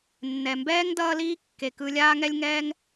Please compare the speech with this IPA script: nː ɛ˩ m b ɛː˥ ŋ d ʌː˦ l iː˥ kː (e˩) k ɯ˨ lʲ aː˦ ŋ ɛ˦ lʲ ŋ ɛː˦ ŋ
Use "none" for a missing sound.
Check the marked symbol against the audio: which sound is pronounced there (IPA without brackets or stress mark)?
e˩